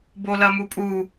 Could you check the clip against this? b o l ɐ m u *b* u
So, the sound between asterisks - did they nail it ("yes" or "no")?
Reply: no